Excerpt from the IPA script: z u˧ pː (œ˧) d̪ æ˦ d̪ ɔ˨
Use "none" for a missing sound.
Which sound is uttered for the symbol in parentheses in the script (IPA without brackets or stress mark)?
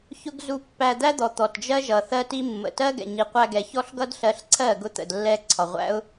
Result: æ˧